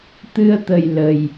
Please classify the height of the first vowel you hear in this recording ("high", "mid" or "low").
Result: high